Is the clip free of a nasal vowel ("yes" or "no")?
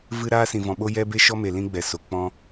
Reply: no